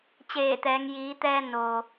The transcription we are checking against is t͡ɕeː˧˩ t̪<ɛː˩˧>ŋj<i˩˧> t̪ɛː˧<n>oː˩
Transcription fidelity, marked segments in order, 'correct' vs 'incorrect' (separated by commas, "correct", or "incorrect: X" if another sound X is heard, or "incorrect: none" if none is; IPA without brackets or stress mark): correct, incorrect: iː˩˧, correct